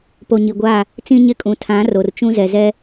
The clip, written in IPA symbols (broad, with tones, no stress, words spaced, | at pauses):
po˨ɲi˨ɡʷaː˦˨ | t͡sĩ˦ɲɪ˦kʼũ˨˦ tʰã˨˦ ro˨rt͡ʃũ˦zɛ˨ zɛ˦